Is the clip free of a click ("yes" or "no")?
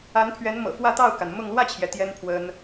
yes